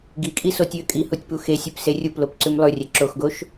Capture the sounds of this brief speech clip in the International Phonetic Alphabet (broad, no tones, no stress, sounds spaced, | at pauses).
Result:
ɡ i kʼ i s o tʲ ʉ ə̯ kʼ i h u tʲ p u x e sʲ ʉ p s e rʲ u p l o p ǀ ʉ m lˠ ʉ rʲ ɛ ǁ o x ɡ o ʃ